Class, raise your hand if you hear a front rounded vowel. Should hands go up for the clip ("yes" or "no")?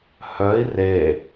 yes